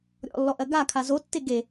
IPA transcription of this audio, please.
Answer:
ɾʲ ɔ̰ lː ɔ ʔ ɜ ɡ a kʰ a z o tː e ɡ e

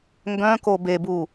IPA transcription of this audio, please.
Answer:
ŋ ɡ œ̃ k o b e b u

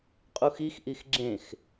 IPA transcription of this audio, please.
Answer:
qʼ u x i x ʔ i x ɡ͡ǁ ẽ x

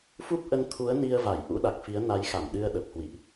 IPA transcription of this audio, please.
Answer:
f u˦˥ p̚ ʔ ə˧ n t̪ʰ u˨˦ ə̯ n i˧ ə̯ v a˧˩ j ʔ ṵ˧˥ ɗ a˨˩ k̚ f i˨˦ ə̯ n a˨˦ j x a˧˩ m ɗ ɨ˧ ə̯ ɗ ə˨˩ p̚ h w ḭ˧˨ ʔ

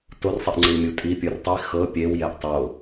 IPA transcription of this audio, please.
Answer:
t o r sˤ i ʔ ŋ͡ǀ ɯ i̯ mʲ u tʼ i pʲ ɯ r tˤ i x ɤ pʲ e w j ɛ ʔ tˤ o

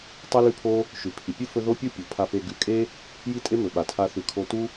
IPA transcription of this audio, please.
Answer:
tˤ ʉ˦ l ʉ˦ pʰ o˦ | ʃ ʉ˨ pʰ i˨ pʲ ɨ˦ f ɵ˧ ð o˦ pʲ u˦ pʲ u˨ pʰ a˧ f e˧ ɡ ʉ˨˦ kʼ e˦ | j i˦ tʼ e˦ m ɵ˨ ɓ a˨ tʰ a˦ θ ʉ˧ kʰ o˦ t u˦

